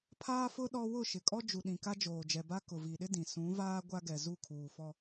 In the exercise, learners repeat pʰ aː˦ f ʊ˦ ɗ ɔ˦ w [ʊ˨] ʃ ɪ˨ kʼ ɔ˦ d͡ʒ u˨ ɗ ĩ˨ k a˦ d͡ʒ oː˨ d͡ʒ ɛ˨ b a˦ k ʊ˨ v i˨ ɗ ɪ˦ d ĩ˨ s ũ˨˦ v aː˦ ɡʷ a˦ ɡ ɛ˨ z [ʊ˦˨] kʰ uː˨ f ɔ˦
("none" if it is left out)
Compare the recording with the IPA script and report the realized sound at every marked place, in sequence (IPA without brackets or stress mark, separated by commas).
ʊ˦˨, u˦˨